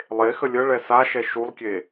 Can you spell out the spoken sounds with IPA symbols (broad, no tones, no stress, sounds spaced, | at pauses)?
lˠ e x ə lʲ ə ɭ ɛ s a ʃ ɛ ʃ u lˠ kʲ e